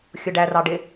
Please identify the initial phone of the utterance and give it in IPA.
xʲ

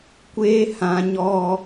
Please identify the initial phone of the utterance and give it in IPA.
kʷ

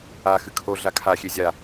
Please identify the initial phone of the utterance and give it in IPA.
a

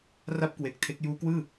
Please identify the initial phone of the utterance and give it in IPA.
r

